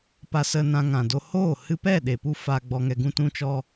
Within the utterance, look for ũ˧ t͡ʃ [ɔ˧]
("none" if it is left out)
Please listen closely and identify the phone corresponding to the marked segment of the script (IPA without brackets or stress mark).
ɔ˧